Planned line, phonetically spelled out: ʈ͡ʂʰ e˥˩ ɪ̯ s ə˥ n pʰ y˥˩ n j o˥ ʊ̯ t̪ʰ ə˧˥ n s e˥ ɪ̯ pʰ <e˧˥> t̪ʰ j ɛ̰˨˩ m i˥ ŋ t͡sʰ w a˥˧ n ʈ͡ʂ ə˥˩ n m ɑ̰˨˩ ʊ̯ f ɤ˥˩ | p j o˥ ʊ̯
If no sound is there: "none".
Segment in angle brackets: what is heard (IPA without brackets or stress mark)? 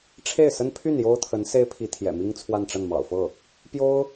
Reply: i˧˥